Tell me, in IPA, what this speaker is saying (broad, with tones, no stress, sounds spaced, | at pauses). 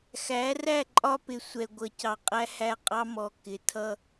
x æ˨˦ r æ˦˨ ǃʼ ɒ˦ p ɪ˨ sʷ ɛ˨ ɡʷ ʌ˨ c ɑ˨ qʼ æ˦ h æ˦ qʼ ɑ˦ m ɔ˨ k ɪ˨ tʰ ʌ˦